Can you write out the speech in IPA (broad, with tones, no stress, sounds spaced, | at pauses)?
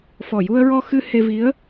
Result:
f ɔ˨˩ j u˧ ə̯ ɹ ɔ˧ x ɨ˧ h e˧ v i˧˥ ə̯